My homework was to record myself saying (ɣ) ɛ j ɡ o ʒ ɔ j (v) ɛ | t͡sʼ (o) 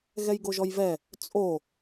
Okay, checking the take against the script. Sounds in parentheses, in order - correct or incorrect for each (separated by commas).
correct, correct, correct